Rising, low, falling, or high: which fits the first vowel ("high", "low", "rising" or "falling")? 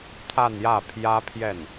falling